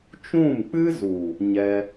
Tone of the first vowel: falling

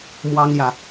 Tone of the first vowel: high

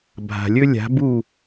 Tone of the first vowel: low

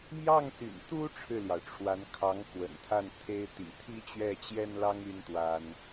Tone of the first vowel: falling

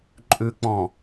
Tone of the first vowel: low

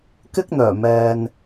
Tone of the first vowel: high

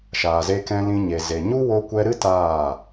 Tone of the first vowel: low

